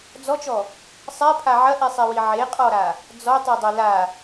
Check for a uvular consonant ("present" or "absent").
present